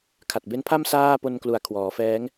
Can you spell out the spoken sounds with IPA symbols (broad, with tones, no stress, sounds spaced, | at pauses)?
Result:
kʰ a˨˩ t̚ b e˦˥ n pʰ a˥˩ m s aː˥˩ p o˧ n k l u˨˩ a̯ kʰ w ɔː˩˦ f ɛː˦˥ ŋ